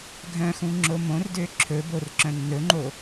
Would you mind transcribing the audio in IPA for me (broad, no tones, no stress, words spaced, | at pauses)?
ɡʱœ̃xũ ŋ͡ǁomõrdø ǁʰɵbor ǁœ̃nːɵŋ͡ǃo